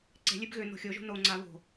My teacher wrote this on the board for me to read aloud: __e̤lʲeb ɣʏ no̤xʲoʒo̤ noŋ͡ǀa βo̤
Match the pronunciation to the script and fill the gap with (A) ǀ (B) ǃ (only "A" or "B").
A